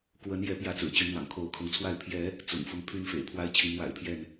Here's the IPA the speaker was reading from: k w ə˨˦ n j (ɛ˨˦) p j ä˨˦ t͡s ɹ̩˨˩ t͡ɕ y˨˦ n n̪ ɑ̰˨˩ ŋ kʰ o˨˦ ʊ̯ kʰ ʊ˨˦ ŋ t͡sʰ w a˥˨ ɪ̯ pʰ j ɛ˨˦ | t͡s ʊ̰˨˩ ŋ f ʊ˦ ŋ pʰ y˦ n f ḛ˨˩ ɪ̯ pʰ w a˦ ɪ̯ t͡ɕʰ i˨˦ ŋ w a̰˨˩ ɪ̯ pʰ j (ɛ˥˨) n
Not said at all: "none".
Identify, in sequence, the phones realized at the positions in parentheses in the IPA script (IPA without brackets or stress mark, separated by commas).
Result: ɛ˨˦, ɛ˥˨